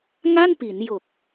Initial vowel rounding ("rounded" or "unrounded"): unrounded